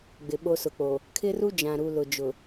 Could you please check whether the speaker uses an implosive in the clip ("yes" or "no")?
yes